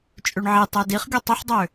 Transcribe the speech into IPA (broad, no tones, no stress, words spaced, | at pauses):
t͡ʃʼøɳʕi tˤɛdiχɡʲo tˤʊħdˤø